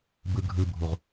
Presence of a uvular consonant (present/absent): present